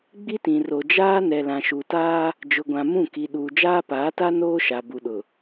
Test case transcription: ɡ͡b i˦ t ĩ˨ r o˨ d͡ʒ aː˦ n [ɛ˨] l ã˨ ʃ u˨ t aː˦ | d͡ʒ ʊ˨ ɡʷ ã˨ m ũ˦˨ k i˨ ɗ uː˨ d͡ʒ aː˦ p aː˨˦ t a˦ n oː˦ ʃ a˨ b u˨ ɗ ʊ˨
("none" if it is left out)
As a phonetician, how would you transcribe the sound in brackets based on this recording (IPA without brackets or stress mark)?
ɛ˨